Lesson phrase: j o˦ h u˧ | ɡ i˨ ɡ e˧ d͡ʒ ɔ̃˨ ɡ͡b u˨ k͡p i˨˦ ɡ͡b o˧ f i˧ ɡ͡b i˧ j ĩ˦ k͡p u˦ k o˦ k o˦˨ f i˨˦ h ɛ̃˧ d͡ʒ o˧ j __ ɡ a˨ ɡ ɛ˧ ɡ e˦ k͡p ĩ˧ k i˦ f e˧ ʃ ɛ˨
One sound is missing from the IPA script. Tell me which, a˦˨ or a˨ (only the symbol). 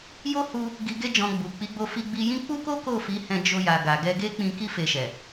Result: a˨